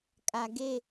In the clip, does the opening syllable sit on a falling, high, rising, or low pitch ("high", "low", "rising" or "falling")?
low